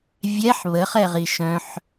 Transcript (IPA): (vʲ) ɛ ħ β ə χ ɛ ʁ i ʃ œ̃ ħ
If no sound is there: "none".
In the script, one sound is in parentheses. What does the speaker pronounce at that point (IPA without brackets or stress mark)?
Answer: vʲ